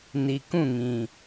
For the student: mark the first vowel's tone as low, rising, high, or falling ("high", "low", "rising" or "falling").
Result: low